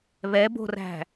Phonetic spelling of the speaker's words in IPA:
β ɛ b o̤ r æ̤

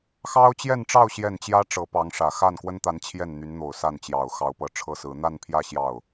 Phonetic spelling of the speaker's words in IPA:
x ɑ˥ ʊ̯ t͡ɕ j ɛ˥˧ n ʈ͡ʂ ɑ˥˧ ʊ̯ ɕ j ɛ˥˩ n t͡ɕ j ä˥ ʈ͡ʂ ɤ˧˥ p ɑ˧˥ ŋ ʂ ä˨˩ x a˥˩ n k w ə˥ n t̪ a˧˥ n t͡ɕʰ j ɛ˥˩ n n̪ y˧˥ n n̪ o˨˩ ʊ̯ s a˥˩ n t͡ɕ j ɑ˨˩ ʊ̯ x ɑ˧˥ ʊ̯ p ɤ˧˥ ʈ͡ʂʰ ɤ˥ s ɹ̩˧˥ n̪ a˥˧ n pʰ j ä˥˧ ɕ j ɑ˥˩ ʊ̯

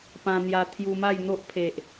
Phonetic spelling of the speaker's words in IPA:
p ã˧ n̪ j a˧ t̪ʰ j u˧ m a˥˧ j n̪ o˦ ʔ pʰ e˨ ʔ

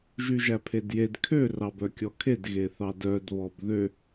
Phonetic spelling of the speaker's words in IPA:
ʒ y ʒ æ pʰ e d j e d kʰ ø r ɑ b œ kʲ ɔ kʰ e d ɣ e θ ɑ d œ d β ɔ b ð ø

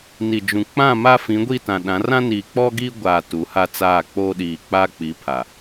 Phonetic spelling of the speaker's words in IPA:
n i˨ d͡ʒ ũ˨ k͡p ã˦˨ m a˦ f ĩ˨˦ ɡʷ i˦˨ t ã˨ ɗ ã˨˦ r ã˦ n iː˨ k͡p ɔ˦ ɡ iː˦ ɡʷ aː˨ t u˨˦ h a˦ t͡s aː˦˨ k͡p oː˦ ɗ iː˨ k͡p aː˦ k͡p i˨˦ pʰ a˨

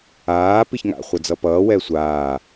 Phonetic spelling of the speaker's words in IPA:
aː p i ç ŋ a̰ χʷ ʌ d͡z ʌ p ʌː w ɛ sʷ aː

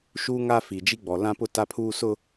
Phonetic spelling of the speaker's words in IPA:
ʃ uː˦ ŋ a˦ f i˨ d͡ʒ i˦ ɡ͡b ɔ˨ l ã˦ p ʊ˦ t a˦ pʰ uː˦ s ʊ˦

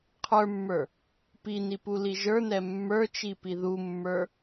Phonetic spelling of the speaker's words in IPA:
qʰ ə˞ mː ə˞ | p i n i p u l i ʒ ə˞ n ɛ mː ə˞ t͡ʃ i p i ð u mː ə˞

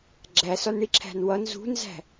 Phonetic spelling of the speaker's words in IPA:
ɡ͡ǁ æ s ɒ n ɳ i ǁʰ æ̤ n w ʌ n z ṳ n z æ̤

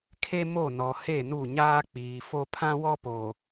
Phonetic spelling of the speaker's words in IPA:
kʰ e˦ m o˦˨ n ɔ˨ h e˦˨ n u˦˨ ɲ aː˦ k͡p iː˨ f o˦ pʰ ã˦ w ɔ˦ p oː˨

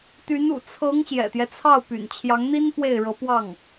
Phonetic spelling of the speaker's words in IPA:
t̪ y˧˥ n ṵ˨˩ t͡sʰ ɤ˧˥ ŋ ɕ j ɛ̰˨˩ t̪ j ɛ˦ t͡sʰ ɑ˥˩ ʊ̯ p y̰˨˩ n t͡ɕʰ j ɑ˧˥ ŋ n̪ i˥ n p w e˥˩ ɪ̯ ɻ ɤ˧˥ p w ɑ˥˩ ŋ

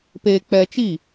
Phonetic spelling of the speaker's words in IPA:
p eː˧ k͡p ɛ˧ t͡ʃ iː˦˨

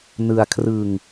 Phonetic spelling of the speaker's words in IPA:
n ɯ˧ a̯ kʰ r ɯ˧ ŋ

